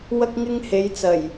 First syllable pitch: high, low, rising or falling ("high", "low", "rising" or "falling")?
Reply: high